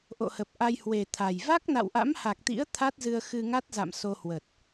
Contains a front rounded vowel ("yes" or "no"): no